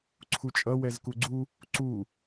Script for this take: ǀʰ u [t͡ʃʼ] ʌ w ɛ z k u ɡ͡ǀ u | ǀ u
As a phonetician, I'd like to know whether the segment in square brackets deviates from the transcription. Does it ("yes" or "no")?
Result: no